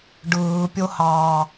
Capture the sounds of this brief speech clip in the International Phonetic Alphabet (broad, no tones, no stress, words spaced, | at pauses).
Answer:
ɖɯːpʲohɑː